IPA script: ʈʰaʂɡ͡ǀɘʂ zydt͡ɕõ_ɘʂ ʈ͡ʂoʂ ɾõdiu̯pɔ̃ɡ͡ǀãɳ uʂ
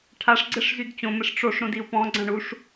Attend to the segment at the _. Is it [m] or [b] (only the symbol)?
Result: m